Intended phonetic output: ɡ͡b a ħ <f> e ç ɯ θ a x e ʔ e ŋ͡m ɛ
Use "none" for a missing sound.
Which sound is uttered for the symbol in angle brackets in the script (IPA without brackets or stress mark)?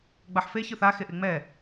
f